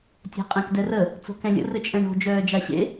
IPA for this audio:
tʲ æ̤ qʼ ɛ̃ k d ɛ r ə | t͡s o̤ k ɛ̃ lʲ ə̰ r ɘ t͡ʃʼ ɛ̃ ɳ o̤ d͡ʒ œː d͡ʒ a ɕ ḛ

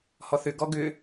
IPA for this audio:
h ɔ θ ʏ ɡ ɔ ɡ ʏ

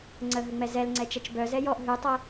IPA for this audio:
ŋ͡ǀ ə ɦ ə ŋ͡m ɛ z ɛ l ŋ͡ǀ ɛ t͡ʃ ɛ t͡ʃ b œ z ɛ j ɔ ʔ ɦ ʉ tˤ ə

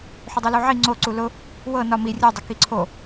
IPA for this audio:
ħ u dˤ u l u ʕ i ŋ͡ǀ o ǀ u l ʊ | w ɤ n ɒ m i rʲ u dˤ ə k i ǀʰ o

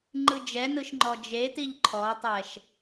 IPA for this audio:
ŋ͡ǃ ɯ d͡ʒ ɛ n ɯ ʃ ŋ͡ǃ ɔ d͡ʒ e t i ʎ ǃʰ ɔ tˤ ɛ ʃ

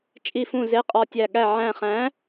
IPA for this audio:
t͡ʃʼ i˧˩ f ũ˧˩ z e˨˥ qʼ ɒ˧˩ tʲ æ˧˩ ɠ æ˧˩ ʕ æ̃˧˩ χ æ̃˨˥

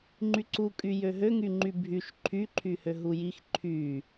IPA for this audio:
ŋ͡ǃ y ǀ u kʼ y j ø ɦ ø ŋ y ŋ͡ǃ y bʱ y ʃ ǃʰ y ǃʰ y h ø ɦ u j i x ǃʰ y

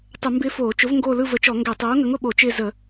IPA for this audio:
tˤ ə˧˩˧ m b ɪː˦ f oː˧˩˧ t͡ʃ ʊ˨˥ v ŋ ɡ oː˦˨ l ɯ˦˨ v ə˨˥ t͡ʃ ɔ˧˩˧ ŋ ɡ ɛ˧˩˧ tˤ oː˨˥ ŋ ə˨˥ ŋ ʊ˧˩˧ ɓ o˧˩˧ t͡ʃ ɪː˦˨ z ə˧˩˧

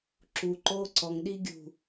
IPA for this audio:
ǁ u ǃ oː ǀ ɔ ŋ ɗ i ɡʲ ṳ

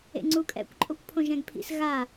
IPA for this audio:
ḛ ŋ͡ǀ u kʼ ɛ̰ kʷ ǃʼ o kʷ pʰ õ ʒ ɛ̃ ɡ pʰ ḭ s ɣ a

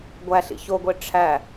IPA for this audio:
ɡʷ æ ɬ ḭ ç o ɡʷ e ʈ͡ʂʰ æ

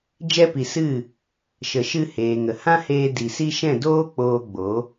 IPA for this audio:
d͡ʒ ɛ˧ p i˨ s ɨ˦˨ | ʃ ə˨ ʃ ɨ˧ h eː˨ ŋ ə˨ h ã˦ h eː˧ d i˨ s i˦ ʃ ɛ̃˦˨ d oː˦ k͡p oː˧ ɡ͡b o˨˦

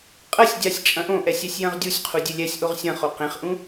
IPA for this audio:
qʼ ɐ sʲ dʲ a sʲ t͡ʃʼ ɐ̃ ʔ õ ʔ ɛ sʲ ɛ sʲ j ɐ̃ ʁ dʲ u sʲ qʰ u dʲ e lʲ ɛ sʲ ʔ o ʁ sʲ ɐ̃ χ o q ẽ χ ʔ ũ

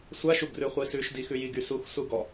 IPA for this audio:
sʷ a ʃ u ɡ r ʉ χʷ i s ʉ ʃ d i x ʉ j i ɡ y s u x s u ɡ ɔ

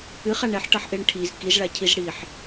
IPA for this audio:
ɨ χ a ɳ ɛ ħ ʈ ʌ ħ ʔ e ɳ ʈʰ i z k i z ɭ a cʰ i z ɽ i ħ

